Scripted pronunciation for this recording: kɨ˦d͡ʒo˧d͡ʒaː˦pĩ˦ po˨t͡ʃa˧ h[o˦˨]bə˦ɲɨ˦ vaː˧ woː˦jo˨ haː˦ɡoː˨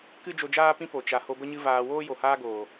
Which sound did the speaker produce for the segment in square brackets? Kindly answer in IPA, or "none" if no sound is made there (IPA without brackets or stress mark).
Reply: o˧